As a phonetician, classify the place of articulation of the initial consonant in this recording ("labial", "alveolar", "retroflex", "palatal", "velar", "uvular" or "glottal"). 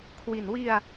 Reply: velar